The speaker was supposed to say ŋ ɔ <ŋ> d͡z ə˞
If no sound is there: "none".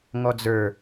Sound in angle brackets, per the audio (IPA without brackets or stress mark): none